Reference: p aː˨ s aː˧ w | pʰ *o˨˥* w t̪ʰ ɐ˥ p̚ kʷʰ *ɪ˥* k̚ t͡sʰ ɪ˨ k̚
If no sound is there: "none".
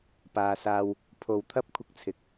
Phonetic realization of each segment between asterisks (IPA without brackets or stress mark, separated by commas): o˨, ɪ˧